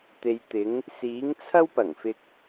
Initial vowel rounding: unrounded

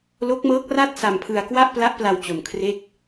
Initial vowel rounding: rounded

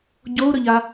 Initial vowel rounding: rounded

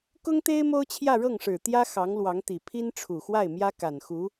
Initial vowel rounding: rounded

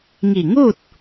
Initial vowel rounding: unrounded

